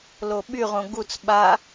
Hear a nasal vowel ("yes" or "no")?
yes